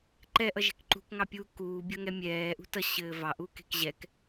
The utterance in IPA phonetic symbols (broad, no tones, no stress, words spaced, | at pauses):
ǃɛʔʌʒɛ̤k ǃṳkŋɑpʲuː kuːbʲʌŋɛ mʲɛːʔṳ tʌɕɘː vɑʔuːke̤k ʑɛk